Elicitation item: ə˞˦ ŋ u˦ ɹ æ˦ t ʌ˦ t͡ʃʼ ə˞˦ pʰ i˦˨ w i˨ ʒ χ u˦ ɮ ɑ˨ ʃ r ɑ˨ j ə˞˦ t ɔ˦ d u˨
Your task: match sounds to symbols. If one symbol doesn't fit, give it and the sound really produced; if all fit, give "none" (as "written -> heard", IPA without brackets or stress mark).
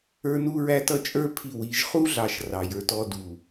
ŋ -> n